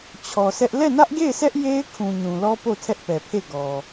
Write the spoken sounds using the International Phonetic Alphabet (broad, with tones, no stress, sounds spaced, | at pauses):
t͡ɕʰ ɔ˨ s ɛ˦ ʔ l ɛ˦˨ n ä˦ ʔ ɡ e˦˨ ɪ̯ s ɛ˦ ʔ j e˦ ɪ̯ kʰ ũ˨ ɲ ũ˨ l ɔ˦ p o˦˨ tʰ ɛ˦ ʔ p ɛ˨ pʰ e˦˨ ɡ ɔ˨